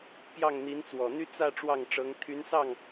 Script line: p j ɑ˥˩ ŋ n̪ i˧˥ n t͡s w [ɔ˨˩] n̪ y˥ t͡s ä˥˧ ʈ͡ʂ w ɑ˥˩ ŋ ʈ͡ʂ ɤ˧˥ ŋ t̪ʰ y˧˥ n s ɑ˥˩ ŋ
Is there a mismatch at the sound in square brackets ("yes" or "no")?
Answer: no